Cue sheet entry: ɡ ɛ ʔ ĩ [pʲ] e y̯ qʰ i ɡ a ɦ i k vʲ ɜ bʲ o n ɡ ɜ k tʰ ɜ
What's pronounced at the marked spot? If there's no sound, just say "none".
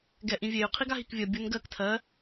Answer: vʲ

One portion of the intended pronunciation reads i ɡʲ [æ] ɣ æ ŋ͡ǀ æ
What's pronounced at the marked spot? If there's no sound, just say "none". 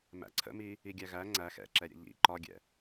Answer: æ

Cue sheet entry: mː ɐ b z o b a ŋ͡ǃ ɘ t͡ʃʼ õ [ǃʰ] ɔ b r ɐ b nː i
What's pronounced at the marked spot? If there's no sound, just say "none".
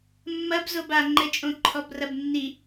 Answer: ǃʰ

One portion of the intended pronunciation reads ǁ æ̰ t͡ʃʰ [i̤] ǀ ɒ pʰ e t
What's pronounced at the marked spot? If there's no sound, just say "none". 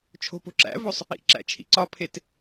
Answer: ḭ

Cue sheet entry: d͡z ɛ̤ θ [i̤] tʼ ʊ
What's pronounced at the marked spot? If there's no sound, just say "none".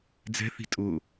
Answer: i̤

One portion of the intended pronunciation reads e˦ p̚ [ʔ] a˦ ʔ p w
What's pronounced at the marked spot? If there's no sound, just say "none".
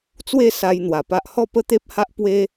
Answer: h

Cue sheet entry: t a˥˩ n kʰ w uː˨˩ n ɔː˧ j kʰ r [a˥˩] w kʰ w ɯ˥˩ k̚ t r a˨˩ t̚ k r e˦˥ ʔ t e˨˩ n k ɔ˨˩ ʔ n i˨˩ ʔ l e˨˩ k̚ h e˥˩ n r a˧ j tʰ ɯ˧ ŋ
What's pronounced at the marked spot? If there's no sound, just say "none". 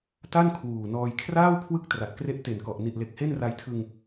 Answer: aː˥˩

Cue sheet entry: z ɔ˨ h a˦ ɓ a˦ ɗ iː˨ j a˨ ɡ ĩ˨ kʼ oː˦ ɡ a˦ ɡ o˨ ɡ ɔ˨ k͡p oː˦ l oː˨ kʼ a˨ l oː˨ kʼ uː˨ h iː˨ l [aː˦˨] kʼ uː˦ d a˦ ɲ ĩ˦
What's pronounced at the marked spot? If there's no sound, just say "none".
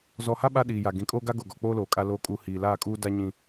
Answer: aː˦˨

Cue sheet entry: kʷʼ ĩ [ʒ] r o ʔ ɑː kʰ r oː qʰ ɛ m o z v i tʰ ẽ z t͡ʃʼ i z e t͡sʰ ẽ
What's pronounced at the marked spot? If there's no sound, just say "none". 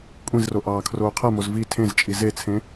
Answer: z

